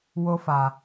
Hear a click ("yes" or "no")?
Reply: no